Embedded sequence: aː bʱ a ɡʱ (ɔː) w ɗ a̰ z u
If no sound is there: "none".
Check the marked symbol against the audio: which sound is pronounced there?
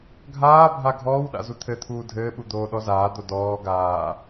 ɔː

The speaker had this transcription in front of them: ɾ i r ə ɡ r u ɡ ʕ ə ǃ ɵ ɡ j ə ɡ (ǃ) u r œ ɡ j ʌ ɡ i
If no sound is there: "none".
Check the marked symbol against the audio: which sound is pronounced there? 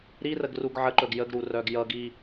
ɾ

